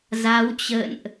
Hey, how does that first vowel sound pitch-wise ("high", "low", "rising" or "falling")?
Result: rising